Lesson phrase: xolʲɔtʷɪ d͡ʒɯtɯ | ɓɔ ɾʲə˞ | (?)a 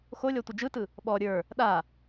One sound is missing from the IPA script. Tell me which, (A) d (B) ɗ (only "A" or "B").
B